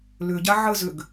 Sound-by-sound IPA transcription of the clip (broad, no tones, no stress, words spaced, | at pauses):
lʏɟa ʕəzʏɡ